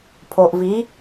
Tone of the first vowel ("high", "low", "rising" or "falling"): low